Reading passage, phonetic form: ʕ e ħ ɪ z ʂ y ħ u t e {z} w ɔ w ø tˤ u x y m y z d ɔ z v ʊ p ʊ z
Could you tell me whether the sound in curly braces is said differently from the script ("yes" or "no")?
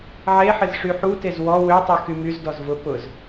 no